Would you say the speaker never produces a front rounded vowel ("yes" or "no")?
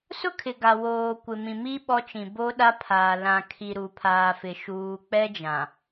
yes